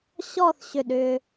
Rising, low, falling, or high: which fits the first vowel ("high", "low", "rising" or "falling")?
falling